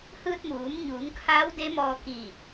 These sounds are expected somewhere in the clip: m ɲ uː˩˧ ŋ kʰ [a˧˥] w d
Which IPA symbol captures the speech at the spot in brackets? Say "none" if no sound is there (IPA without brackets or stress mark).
a˧˥